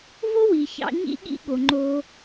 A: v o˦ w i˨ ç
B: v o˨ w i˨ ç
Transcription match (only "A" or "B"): A